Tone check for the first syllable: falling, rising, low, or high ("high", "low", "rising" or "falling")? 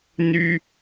high